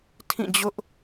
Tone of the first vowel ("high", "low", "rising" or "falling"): falling